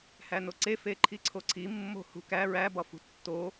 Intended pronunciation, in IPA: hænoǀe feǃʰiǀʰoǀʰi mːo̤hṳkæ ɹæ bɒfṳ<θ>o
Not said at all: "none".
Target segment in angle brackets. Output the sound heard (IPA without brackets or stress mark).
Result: tː